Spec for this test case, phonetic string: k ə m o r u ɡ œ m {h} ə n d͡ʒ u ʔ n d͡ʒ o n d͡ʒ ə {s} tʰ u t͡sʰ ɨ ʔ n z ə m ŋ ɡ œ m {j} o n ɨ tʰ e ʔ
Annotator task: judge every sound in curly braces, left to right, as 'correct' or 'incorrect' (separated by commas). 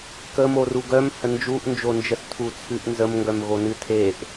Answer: correct, correct, incorrect